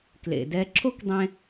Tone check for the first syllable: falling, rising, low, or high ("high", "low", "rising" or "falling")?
low